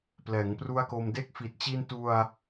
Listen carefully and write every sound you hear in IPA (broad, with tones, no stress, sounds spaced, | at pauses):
p l ɛː˩˦ ŋ p r u˦˥ a̯ k o˧ m d e˥˩ k̚ f i˨˩ t̚ t͡ɕ i˧ n t u˧ a̯